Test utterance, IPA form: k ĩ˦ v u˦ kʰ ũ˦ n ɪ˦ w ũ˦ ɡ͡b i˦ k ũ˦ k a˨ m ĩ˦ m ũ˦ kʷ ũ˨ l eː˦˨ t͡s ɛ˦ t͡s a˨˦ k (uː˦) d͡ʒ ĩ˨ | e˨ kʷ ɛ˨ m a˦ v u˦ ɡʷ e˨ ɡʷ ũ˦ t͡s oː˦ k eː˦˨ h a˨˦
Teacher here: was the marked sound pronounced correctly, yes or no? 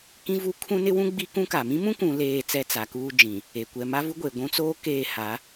yes